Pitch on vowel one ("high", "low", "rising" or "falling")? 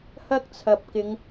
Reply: high